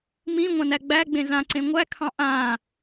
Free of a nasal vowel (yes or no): no